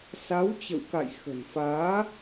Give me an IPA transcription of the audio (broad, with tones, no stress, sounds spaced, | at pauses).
s a˨˦ w t͡ɕ ə̰˧˨ w k a̰˧˨ j x ə̤˨˩ n f aː˨˦